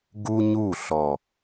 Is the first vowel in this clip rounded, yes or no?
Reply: yes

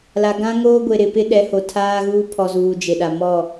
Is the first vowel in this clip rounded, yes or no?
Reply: no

